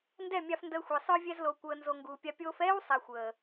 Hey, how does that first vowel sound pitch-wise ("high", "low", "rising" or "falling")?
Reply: falling